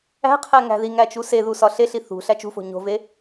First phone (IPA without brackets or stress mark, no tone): æ̤